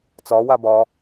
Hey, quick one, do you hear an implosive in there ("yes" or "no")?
no